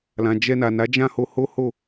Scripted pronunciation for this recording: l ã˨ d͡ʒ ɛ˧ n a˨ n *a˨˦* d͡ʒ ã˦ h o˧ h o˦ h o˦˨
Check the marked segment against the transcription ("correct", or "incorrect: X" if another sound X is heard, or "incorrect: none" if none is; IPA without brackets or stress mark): correct